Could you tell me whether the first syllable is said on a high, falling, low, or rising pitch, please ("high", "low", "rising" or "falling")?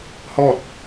falling